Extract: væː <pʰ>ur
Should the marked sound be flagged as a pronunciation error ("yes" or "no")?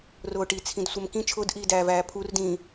no